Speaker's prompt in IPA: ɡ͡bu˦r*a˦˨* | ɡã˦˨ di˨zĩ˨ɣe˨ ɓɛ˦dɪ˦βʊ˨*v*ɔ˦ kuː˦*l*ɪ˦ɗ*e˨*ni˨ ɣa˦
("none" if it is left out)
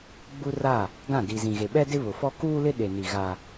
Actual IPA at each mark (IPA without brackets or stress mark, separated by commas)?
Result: a˦˨, f, l, e˨